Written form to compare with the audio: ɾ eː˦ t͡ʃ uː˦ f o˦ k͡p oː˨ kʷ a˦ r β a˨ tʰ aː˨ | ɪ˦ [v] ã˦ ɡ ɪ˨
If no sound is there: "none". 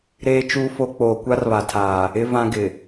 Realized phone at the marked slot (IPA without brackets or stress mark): v